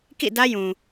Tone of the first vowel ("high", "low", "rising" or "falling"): falling